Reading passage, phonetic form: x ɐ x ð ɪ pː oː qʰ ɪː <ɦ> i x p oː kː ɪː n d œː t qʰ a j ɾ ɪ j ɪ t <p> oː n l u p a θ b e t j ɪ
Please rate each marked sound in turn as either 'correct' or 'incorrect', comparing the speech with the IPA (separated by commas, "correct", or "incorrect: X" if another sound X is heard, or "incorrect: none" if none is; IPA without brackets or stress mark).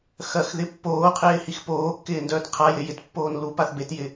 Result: incorrect: h, incorrect: pː